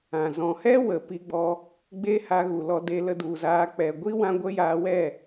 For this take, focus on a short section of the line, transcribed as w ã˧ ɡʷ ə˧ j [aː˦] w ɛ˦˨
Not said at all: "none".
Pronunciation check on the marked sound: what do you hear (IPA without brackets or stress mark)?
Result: aː˧